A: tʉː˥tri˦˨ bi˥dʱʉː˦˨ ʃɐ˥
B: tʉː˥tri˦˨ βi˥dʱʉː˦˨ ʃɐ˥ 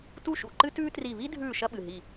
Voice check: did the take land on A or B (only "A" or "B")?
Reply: B